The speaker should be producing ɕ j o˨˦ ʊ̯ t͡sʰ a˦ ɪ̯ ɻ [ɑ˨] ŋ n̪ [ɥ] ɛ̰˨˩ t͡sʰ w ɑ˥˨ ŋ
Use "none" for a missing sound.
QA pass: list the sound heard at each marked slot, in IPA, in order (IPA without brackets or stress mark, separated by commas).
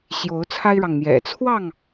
ɑ˨, j